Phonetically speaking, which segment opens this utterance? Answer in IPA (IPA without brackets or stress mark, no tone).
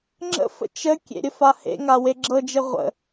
ŋ͡ǁ